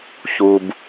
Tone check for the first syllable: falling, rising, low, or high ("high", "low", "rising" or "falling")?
low